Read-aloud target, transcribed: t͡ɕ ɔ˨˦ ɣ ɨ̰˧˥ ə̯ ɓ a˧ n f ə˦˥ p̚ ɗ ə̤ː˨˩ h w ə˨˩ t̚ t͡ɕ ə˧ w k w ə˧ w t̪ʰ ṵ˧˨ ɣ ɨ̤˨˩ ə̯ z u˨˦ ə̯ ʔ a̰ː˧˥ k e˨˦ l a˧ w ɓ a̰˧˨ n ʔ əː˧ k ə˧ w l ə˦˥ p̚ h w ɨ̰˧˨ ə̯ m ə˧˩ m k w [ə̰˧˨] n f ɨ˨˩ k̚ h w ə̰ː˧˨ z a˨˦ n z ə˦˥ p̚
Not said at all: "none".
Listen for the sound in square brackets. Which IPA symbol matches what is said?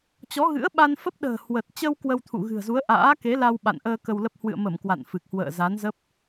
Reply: a̰˧˨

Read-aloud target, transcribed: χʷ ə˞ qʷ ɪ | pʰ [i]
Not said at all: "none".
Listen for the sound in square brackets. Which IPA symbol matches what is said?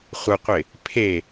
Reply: e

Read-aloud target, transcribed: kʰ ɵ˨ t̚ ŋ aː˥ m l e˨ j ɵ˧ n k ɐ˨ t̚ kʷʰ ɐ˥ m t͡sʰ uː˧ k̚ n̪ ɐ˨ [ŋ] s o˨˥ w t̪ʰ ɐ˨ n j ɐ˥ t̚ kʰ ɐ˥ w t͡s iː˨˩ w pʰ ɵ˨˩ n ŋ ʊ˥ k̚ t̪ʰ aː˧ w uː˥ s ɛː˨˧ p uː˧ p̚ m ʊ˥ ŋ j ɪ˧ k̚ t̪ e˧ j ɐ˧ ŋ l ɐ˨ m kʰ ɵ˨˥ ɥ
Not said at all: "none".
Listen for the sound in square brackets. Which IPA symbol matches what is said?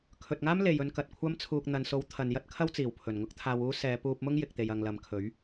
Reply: n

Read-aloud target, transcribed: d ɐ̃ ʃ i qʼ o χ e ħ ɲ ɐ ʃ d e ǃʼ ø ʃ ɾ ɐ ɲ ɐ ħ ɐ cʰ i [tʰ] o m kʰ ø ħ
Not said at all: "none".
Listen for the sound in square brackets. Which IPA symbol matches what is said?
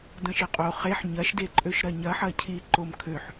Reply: ǃ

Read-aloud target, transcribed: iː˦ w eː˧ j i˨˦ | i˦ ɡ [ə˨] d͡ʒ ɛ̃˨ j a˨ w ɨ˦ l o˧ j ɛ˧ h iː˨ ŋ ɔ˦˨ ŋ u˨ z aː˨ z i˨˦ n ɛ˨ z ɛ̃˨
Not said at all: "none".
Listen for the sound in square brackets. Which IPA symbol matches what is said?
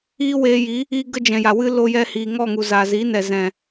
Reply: ə˦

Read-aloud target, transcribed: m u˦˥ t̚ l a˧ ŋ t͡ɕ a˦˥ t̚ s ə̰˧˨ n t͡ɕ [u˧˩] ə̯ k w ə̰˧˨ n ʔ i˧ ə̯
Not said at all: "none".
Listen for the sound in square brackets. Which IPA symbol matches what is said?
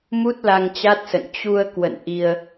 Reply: u˧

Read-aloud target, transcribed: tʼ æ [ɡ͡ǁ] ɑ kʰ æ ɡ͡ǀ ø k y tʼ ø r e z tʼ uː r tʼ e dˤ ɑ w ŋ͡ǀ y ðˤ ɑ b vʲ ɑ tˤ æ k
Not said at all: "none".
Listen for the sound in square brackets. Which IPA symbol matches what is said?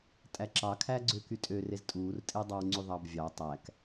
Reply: ǁ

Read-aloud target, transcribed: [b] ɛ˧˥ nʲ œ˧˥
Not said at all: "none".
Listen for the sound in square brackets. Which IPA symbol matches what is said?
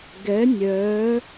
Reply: ɡ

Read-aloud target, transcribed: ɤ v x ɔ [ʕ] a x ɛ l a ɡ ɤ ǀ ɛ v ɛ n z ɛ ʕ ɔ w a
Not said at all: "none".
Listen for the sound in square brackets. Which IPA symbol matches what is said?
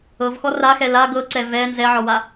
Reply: r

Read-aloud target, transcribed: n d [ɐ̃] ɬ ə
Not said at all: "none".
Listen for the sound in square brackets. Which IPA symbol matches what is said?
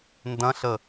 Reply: ɐ̃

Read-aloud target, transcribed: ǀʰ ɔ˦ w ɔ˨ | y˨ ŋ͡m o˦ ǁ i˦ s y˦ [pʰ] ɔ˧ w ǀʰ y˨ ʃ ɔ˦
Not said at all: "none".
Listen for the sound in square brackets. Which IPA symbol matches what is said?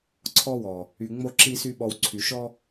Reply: ɓ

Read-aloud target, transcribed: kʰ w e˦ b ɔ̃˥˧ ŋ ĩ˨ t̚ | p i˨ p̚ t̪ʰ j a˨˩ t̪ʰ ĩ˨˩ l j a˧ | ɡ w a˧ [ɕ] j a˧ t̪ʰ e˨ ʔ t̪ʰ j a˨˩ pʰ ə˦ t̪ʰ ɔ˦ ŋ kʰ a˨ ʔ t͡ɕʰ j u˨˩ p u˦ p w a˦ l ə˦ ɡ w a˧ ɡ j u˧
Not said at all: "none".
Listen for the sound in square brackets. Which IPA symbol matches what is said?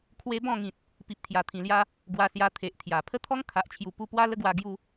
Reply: s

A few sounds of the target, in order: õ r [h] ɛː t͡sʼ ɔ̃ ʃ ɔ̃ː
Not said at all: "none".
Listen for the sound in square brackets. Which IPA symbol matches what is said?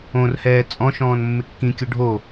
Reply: h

